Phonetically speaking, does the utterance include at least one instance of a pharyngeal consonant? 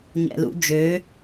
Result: no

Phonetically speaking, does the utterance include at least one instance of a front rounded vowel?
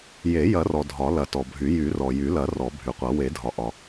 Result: yes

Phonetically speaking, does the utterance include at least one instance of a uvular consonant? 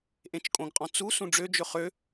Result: yes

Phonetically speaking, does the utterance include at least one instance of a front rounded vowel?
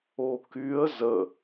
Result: yes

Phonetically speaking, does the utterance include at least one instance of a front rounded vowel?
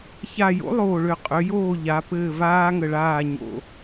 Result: yes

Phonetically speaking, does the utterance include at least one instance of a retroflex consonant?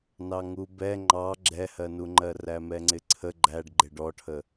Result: yes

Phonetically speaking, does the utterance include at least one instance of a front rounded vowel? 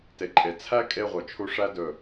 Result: yes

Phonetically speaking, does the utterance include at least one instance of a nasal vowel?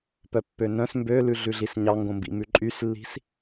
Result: yes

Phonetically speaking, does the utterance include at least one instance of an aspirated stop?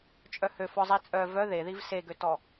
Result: no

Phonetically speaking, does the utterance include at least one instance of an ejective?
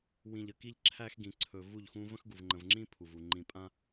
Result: yes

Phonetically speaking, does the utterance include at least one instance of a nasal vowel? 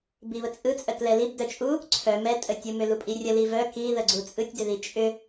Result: no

